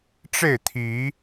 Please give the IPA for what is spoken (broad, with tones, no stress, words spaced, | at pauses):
ʈ͡ʂe˥˨ɪ̯t̪ʰi˨˦